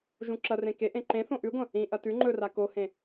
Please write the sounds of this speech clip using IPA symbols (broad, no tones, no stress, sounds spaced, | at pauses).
ʒ ũ ǁ ɐ r ẽ k e ʔ ẽ ǃ ẽ θ õ ʔ ʉ ɡʷ ɐ̃ | ĩ ʔ ɐ t ʉ ŋ͡ǃ ɵ r a k o h ẽ